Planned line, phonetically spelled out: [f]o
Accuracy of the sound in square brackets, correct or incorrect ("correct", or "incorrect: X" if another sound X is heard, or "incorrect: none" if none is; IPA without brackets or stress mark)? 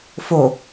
correct